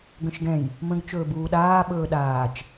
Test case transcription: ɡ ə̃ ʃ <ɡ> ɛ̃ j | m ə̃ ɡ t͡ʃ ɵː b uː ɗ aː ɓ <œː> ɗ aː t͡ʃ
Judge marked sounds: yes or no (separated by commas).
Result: yes, no